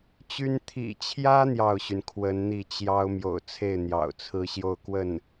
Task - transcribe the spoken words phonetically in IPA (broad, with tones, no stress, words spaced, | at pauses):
t͡ɕy˥n t̪ʰḭ˨˩t͡ɕʰjä˥ n̪jɑ˥˩ʊ̯ɕy˩nkʰwə˧˥nn̪i˥˩ t͡ɕjɑ˥ʊ̯ mjo̰˨˩ʊ̯t͡sʰe˥˩ɪ̯ n̪jɑ̰˨˩ʊ̯t͡sʰɹ̩˥ɕjo˥˧ʊ̯kwə˥˩n